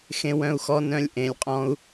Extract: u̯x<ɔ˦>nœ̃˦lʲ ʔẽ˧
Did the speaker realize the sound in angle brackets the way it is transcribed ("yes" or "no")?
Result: yes